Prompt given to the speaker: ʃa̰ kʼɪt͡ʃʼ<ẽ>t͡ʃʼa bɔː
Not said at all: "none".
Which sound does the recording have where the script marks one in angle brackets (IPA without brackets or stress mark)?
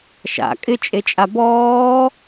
e